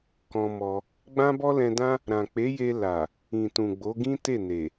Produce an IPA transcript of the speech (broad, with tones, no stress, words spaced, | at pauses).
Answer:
kɔ̃˧mɔ˧ | ɡ͡bã˦bɔ˦lɛ̃˧dã˦ | ɾã˨k͡pe˨˦je˧ la˨ | ĩ˨tũ˨ ɡ͡bo˨˦ɡĩ˦te˦˨ ne˨